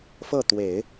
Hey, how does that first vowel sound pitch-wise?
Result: falling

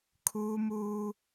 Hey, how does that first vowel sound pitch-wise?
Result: high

